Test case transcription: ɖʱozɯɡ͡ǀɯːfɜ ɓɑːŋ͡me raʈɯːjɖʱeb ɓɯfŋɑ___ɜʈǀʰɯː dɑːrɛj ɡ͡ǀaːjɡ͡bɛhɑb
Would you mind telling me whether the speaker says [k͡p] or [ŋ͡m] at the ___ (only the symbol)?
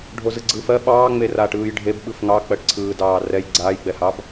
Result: k͡p